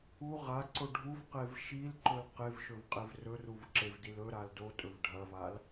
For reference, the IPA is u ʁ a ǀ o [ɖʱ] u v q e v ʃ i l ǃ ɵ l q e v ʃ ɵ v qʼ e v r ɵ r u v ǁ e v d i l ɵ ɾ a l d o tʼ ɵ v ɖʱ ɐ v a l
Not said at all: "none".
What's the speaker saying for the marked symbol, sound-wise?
ɖʱ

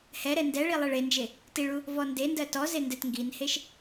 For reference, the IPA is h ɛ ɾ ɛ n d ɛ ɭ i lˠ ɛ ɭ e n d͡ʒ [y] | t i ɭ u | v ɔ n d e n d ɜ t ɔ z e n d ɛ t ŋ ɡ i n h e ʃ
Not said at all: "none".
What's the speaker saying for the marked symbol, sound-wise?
e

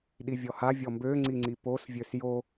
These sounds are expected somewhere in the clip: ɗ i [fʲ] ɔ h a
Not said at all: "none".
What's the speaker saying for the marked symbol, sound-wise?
vʲ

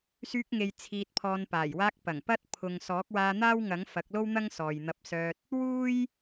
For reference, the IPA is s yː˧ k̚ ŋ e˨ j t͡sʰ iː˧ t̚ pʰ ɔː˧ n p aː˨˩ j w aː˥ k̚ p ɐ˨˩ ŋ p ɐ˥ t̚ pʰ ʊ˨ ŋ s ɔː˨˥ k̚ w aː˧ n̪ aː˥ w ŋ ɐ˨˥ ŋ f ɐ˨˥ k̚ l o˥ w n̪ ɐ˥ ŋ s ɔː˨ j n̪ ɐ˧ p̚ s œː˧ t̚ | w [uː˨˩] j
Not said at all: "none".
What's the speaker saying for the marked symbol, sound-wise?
uː˥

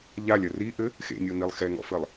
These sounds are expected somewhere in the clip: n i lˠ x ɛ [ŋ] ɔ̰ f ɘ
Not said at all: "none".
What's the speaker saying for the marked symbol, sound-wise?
ŋ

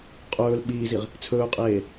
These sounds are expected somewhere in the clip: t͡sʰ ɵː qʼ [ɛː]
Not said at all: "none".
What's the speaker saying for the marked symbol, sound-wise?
eː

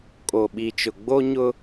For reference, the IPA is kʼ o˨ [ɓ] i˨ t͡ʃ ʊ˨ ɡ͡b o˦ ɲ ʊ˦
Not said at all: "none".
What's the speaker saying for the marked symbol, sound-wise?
ɓ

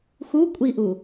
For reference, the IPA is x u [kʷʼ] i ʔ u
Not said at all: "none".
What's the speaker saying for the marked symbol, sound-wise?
kʷʼ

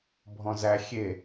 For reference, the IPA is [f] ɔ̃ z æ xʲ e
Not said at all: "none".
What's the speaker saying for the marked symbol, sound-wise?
bʱ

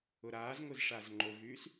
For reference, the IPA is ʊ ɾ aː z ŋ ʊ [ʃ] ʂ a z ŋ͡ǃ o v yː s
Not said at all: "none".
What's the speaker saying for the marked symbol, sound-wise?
z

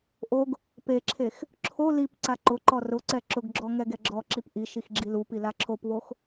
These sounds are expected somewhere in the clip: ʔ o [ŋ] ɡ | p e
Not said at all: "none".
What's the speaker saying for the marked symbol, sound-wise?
none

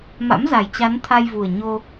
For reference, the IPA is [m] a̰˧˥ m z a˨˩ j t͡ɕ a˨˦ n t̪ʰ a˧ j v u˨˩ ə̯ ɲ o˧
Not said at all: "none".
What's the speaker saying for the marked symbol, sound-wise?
m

